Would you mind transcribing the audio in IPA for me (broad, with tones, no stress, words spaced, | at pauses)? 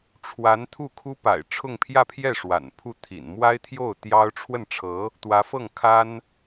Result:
ʈ͡ʂʰwa˧˥nt̪ʰu˥˩ kʰu˥pa̰˨˩ɪ̯ʈ͡ʂʰʊ˥˧ŋ pʰjä˥˧pʰjɛ˥˩ ʂwa̰˨˩n pʰu˥˩t̪ʰḭ˨˩n mwa˥ɪ̯t̪ʰjo˥˩ʊ̯ t̪jɑ˥ʊ̯ ʈ͡ʂʰwə˥˩nʈ͡ʂʰɤ˧˥ | t̪wä˧˥fɤ˥˩ŋkʰa˥n